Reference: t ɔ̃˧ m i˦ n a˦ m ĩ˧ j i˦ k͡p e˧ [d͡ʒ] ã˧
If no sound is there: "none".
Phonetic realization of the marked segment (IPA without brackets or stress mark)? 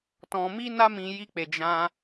d͡ʒ